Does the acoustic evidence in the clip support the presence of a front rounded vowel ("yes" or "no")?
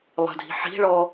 no